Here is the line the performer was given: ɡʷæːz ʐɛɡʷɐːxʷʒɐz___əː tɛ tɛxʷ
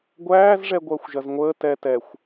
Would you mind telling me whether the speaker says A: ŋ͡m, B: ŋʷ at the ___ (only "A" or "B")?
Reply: B